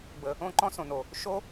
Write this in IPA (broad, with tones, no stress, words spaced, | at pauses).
bə˨ | õ˦˨ǃɔ̃˦ sõ˨no˨ | ʃo˦